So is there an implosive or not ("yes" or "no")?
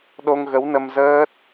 yes